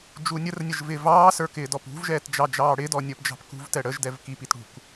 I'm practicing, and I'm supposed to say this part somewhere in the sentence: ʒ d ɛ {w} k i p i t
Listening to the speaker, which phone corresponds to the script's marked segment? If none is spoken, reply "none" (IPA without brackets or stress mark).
v